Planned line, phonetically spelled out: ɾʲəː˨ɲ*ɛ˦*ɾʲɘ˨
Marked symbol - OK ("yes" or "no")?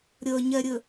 no